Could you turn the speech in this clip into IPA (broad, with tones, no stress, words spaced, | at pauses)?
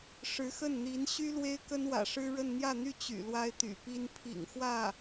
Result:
ʂɻ̩˧˥xə˥˩nn̪i˧˥n ɕy˥ lwe˥ɪ̯kə˥nwä̰˨˩ ʂɻ̩˥ɻə˥˧n n̪jä˥˧n̪y˥˩ t͡ɕy̰˨˩lwa˥ɪ̯t̪y̰˨˩pi˥n pʰḭ˨˩ŋ xwä˥˩